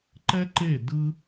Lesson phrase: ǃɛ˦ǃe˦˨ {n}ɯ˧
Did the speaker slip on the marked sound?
yes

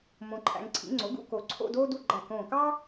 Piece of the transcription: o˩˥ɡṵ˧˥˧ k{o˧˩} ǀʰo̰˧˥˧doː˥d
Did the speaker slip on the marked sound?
no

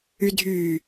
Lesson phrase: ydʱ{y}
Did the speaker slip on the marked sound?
no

